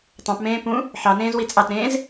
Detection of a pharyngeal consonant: present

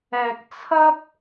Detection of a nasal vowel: absent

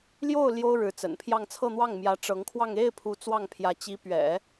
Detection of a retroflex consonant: present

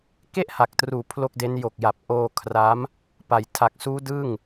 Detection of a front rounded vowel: absent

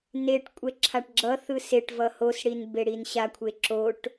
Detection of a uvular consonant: absent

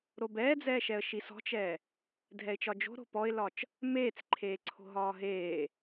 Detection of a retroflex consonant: absent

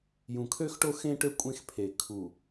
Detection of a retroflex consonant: present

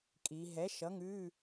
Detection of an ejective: present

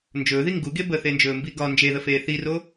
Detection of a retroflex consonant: absent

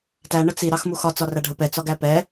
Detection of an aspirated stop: absent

